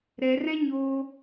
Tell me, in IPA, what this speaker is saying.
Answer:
ɾɛrɛ̃ɲoː

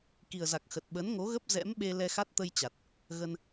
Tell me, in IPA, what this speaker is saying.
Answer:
ki˨˩ə̯za˨˩k̚xə˨˩t̚ ɓə˨˦nŋo˨˦ɣə˦˥p̚ zɛ̰˧˥mɓe˧ lɛ˧xa˦˥t̚ t̪ə˧j t͡ɕa˨˩t̚ | ɣə˧n

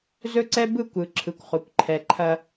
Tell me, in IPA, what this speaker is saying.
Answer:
zɵ˦ǀɛ˦bɯ˦˨kʷ ɯ˨ ǁʰɯ˨kʷχo˨kʷ ǃʰɛ˨ǃʰɐ˦

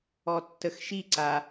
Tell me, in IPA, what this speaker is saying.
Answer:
ɔtːəxʃiǀa

